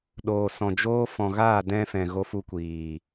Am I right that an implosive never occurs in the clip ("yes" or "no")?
no